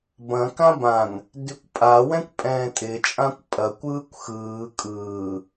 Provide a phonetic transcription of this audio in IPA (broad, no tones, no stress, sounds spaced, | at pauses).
b ɐ̃ k ã b ã n | d ʉ kʷ pʼ a w ɛ̃ kʷ pʼ ɛ̃ː tʼ ɪ t͡ʃʼ ã kʷ pʼ ɐ kʷ ɯː kʷ x ɯː kʼ ɯː